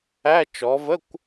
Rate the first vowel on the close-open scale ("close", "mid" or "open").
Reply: open